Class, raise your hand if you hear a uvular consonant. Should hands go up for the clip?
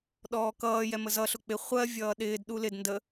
yes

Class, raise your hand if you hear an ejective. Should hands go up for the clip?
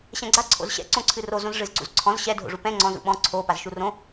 no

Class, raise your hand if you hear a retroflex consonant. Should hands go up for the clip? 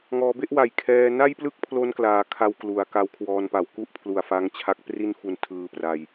no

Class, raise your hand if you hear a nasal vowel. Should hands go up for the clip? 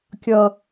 no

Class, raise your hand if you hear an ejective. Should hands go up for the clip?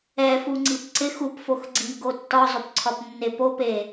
no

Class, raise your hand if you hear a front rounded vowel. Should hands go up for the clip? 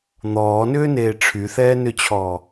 yes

